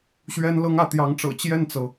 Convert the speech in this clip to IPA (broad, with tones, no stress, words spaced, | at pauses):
ɕɥɛ˥nlɤ˥ŋä˧˥ t̪jɑ˧˥ŋʈ͡ʂɤ̰˨˩ t͡ɕjɛ˥˩nt͡sɤ˩